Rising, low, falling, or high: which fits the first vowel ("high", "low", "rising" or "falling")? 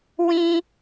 high